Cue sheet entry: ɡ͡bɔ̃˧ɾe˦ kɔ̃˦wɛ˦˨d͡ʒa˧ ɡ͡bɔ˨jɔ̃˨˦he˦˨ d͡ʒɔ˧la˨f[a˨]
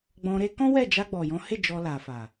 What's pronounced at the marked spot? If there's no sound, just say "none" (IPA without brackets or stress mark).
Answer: a˨